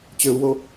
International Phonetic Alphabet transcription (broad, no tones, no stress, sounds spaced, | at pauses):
t͡ɕ ø u̯ w o